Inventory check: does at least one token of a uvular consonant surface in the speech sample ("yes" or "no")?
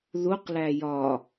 yes